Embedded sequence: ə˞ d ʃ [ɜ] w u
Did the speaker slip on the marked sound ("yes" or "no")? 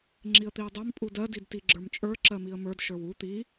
yes